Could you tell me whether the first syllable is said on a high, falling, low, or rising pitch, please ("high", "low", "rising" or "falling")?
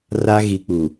high